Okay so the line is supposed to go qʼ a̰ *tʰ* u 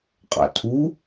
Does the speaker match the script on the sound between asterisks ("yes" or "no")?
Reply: yes